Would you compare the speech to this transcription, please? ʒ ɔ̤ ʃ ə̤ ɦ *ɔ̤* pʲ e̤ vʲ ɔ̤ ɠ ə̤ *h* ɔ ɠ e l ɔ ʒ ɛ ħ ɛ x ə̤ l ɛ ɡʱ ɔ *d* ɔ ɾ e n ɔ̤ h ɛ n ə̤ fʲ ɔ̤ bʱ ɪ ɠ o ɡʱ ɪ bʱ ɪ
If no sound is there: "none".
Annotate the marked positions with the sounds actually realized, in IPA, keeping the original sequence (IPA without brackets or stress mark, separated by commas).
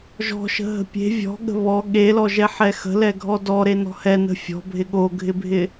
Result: ə̤, β, d